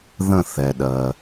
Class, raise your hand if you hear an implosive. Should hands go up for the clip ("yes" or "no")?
yes